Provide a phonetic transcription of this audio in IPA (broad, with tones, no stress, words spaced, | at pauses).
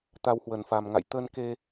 t̪a˧whwə˨˩n fa˨˩mŋa̰˧˨j t̪ə˧nke˧